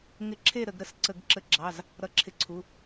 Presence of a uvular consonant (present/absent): absent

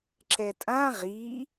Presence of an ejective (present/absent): present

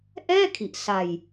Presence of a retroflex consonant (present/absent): absent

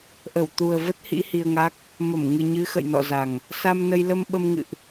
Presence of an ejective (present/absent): absent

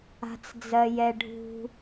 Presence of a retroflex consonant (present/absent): present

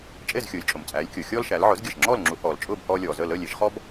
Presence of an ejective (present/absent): present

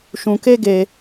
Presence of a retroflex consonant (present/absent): absent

